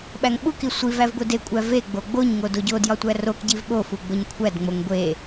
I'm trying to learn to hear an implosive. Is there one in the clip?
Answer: yes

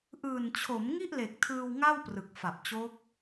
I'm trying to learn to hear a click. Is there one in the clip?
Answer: no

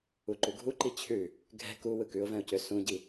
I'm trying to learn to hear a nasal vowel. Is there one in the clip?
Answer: yes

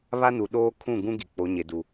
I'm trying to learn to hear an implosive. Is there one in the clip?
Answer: yes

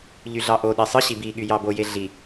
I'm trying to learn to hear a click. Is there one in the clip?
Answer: no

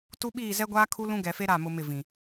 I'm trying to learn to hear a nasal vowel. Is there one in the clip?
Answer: yes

